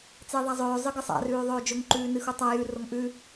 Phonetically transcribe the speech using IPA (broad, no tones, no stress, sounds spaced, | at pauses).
t͡s e ðˤ a zˤ ɵː zˤ ɨ ɡ ɨ sˤ a̰ r ʉː ðˤ ɵː d͡ʒ ɵ ŋ ǃ ʉː n ɨ x u tˤ a j ʉ r o ŋ ʔ ʉ